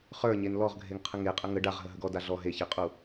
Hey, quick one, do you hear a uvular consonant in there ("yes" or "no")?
yes